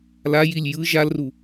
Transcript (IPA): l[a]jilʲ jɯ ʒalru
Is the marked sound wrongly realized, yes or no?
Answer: no